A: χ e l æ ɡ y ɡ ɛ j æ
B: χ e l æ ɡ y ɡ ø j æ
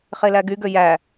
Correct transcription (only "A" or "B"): B